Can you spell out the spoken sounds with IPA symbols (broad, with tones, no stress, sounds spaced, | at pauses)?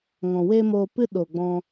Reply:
ŋ ɔ̃˨ w eː˦ m oː˧ p ɨ˦ ɗ oː˨ ɡ͡b ɔ̃˧